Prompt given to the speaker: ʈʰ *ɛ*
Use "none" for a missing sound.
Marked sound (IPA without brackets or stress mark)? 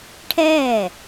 ɛː